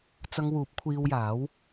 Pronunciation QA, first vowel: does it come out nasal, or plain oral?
oral